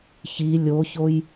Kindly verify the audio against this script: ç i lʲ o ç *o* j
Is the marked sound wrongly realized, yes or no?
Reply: no